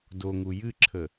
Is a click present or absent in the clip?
present